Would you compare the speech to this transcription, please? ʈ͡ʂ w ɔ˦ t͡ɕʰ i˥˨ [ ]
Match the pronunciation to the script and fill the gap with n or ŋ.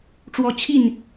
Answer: n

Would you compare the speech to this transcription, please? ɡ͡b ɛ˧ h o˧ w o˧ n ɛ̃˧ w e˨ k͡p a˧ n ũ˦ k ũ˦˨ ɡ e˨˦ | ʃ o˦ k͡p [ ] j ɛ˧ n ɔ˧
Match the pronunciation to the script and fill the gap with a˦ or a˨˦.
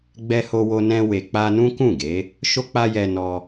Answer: a˦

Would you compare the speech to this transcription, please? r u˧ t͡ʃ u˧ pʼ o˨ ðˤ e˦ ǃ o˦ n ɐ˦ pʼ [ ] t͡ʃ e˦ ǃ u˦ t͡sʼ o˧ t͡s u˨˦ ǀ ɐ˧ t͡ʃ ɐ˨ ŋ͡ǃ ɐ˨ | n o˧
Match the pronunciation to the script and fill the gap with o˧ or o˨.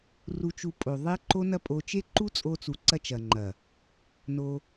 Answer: o˧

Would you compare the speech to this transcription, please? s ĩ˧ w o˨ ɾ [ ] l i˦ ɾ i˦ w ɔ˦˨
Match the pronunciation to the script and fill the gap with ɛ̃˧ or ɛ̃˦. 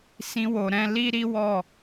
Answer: ɛ̃˧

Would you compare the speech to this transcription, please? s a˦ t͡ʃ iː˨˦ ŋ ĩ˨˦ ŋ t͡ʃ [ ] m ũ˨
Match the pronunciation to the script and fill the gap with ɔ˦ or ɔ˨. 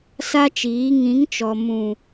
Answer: ɔ˨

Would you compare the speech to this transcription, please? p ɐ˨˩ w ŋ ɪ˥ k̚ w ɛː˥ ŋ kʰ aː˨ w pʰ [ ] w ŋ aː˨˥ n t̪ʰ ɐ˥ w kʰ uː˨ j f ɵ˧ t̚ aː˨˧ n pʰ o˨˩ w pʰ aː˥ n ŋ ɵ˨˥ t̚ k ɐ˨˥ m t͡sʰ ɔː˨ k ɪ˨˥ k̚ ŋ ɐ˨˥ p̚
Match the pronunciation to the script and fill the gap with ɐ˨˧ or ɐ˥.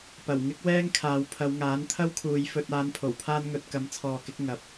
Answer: ɐ˨˧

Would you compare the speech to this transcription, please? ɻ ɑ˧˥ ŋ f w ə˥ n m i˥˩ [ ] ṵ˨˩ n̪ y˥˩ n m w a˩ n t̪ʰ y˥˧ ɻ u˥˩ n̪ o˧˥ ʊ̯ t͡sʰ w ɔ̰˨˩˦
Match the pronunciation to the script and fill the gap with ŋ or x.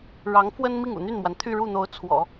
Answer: ŋ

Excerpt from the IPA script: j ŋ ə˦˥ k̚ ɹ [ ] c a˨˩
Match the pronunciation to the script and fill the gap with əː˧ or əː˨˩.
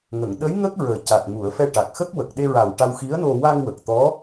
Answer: əː˨˩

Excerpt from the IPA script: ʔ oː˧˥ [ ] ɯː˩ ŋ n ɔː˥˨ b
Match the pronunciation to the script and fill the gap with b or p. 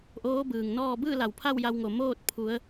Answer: b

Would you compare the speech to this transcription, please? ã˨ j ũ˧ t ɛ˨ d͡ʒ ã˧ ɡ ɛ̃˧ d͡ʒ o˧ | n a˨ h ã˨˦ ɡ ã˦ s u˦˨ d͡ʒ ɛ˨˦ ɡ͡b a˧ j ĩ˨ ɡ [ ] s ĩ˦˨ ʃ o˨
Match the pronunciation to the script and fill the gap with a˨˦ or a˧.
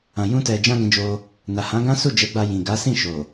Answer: a˨˦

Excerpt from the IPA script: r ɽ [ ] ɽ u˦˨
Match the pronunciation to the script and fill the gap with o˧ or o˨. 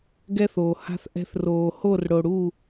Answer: o˨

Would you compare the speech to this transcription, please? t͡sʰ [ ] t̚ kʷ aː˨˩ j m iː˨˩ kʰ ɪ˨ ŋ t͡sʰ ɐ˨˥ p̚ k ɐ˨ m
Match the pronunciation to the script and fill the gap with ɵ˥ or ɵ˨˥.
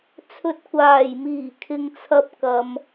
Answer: ɵ˨˥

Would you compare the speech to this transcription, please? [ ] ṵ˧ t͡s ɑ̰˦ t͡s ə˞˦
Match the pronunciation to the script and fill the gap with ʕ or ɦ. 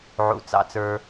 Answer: ʕ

